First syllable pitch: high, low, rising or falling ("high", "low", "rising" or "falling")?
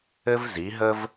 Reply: high